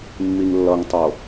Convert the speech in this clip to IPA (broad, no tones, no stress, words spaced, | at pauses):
mːiŋlːʌŋtˤo